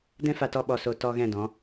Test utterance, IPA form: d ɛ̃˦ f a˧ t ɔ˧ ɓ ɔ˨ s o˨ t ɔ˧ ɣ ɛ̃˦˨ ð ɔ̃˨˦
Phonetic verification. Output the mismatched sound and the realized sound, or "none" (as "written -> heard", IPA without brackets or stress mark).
ð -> d